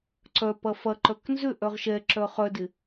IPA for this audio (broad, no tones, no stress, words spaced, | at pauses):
ǀœ pɐfɐǃœk nzʏ ʔœʁʃɛǁœ χœdɪ